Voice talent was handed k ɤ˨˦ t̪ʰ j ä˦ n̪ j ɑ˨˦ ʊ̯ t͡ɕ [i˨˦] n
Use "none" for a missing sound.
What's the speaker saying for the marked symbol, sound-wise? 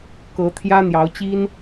i˦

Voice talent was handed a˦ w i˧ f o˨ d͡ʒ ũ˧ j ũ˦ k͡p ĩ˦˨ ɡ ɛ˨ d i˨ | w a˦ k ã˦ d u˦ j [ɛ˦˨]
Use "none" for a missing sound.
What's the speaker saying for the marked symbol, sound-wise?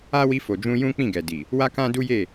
e˦˨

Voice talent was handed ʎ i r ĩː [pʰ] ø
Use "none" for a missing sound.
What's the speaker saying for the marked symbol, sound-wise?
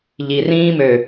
m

